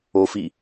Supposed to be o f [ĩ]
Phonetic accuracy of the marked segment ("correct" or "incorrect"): incorrect